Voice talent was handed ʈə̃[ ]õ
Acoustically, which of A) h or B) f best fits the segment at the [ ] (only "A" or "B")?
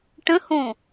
A